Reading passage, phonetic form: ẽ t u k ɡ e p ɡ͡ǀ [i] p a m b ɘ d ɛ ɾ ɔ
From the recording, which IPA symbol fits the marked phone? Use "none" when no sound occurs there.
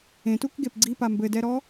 i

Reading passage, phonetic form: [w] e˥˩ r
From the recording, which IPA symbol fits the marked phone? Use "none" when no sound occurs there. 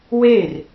w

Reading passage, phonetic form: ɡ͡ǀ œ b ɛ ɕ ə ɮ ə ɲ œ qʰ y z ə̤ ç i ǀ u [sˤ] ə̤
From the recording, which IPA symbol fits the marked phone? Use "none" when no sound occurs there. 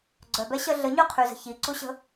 ɕ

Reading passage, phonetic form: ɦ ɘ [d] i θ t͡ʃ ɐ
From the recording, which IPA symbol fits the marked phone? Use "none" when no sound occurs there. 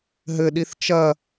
ɗ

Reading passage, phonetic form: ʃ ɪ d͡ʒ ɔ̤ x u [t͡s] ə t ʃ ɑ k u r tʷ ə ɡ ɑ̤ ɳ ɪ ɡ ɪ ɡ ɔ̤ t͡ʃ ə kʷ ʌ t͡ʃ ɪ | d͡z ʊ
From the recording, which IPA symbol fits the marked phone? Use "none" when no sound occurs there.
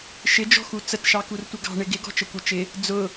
t͡s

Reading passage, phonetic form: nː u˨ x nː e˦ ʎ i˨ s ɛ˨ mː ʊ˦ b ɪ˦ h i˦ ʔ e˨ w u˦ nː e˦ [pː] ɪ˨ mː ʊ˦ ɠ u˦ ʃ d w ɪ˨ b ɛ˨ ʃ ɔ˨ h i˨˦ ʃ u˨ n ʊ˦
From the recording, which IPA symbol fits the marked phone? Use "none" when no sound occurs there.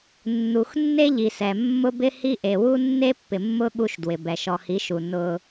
pː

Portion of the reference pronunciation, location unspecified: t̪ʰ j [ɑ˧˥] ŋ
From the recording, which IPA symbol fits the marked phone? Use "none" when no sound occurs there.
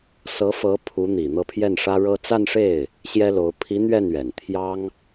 ɑ˥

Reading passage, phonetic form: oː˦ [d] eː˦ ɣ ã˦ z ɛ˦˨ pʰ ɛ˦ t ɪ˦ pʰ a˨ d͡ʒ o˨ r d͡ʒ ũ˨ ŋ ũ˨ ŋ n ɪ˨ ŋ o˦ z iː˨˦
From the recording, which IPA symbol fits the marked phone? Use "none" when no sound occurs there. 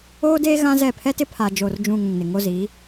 d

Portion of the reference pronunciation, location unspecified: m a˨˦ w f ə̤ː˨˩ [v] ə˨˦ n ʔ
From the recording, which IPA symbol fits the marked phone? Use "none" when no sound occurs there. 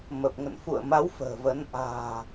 v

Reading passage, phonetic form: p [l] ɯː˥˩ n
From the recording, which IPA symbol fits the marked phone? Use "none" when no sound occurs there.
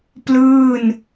l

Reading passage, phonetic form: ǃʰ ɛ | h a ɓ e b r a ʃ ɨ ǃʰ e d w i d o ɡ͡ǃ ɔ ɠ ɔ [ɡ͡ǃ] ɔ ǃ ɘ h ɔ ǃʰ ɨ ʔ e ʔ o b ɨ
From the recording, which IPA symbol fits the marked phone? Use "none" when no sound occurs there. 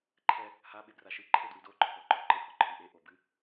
ǃ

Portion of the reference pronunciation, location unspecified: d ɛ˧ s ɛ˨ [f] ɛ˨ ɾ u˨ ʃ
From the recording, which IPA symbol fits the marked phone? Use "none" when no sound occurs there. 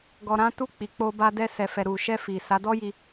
f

